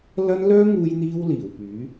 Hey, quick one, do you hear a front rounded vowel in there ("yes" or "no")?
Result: yes